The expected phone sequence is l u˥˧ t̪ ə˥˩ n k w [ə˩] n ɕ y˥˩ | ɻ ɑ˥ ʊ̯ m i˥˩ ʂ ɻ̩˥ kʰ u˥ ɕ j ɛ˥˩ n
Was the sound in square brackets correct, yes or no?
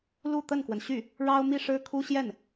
yes